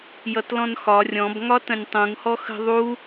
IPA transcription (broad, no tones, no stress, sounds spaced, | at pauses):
j ʌ t l ɔ̃ n x ɒ rʲ ɔ̃ b ŋ ɒ t ə̃ nʲ tˤ ũ ŋ h ɔ x ə̤ ðˤ u